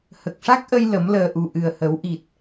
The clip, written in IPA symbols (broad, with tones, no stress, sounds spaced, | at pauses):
h ə˨˩ k̚ ʂ a˦˥ k̚ ʔ ə˧ j l ə˨˩˦ m l əː˨˩ ʔ u˨˩ ʔ ɨ˨˩ ə̯ h ə˨˩˦ w ʔ i˨˩ t̚